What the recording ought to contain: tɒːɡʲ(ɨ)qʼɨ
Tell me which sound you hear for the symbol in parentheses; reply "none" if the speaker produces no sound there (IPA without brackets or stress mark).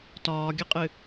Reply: ɨ